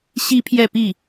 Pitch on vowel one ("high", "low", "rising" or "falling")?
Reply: high